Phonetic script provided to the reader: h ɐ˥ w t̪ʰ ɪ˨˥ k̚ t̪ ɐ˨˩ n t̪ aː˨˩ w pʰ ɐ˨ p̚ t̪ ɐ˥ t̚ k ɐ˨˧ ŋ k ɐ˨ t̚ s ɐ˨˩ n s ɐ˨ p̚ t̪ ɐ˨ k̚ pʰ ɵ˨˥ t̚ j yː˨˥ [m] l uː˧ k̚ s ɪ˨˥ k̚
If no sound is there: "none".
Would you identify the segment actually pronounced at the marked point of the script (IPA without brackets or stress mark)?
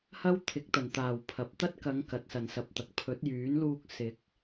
n